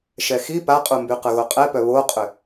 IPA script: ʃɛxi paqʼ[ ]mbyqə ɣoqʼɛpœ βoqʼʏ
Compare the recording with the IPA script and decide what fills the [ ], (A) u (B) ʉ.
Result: A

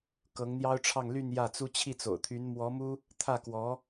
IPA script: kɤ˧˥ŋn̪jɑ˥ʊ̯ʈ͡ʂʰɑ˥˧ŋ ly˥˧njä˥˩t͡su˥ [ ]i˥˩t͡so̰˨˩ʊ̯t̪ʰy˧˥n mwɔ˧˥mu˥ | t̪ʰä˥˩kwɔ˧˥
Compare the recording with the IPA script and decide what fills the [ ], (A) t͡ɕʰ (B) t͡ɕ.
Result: A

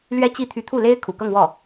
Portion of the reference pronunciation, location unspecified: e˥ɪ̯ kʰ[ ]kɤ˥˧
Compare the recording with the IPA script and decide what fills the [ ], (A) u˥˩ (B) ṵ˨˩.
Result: B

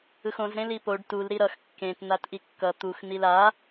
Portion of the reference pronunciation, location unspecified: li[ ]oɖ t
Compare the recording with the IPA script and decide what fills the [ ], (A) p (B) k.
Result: A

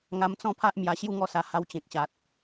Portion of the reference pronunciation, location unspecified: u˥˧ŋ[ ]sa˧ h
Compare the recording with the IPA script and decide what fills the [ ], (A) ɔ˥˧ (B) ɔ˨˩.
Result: A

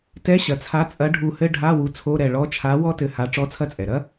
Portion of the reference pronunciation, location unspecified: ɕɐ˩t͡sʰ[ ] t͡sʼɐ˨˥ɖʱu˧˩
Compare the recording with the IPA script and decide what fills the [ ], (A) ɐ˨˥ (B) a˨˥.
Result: B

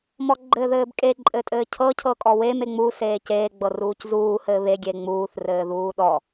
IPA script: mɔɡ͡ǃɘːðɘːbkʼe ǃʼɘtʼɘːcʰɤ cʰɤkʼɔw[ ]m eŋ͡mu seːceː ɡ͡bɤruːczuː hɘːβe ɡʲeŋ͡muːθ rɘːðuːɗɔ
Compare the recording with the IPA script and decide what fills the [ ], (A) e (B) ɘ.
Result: A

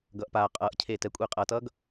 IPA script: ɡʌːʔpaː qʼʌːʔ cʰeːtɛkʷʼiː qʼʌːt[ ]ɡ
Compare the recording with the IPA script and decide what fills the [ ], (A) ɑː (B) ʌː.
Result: B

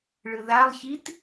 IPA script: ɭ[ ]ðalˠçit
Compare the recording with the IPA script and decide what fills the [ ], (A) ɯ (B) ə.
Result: A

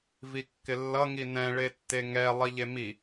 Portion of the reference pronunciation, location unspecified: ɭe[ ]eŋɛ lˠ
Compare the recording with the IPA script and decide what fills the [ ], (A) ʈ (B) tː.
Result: B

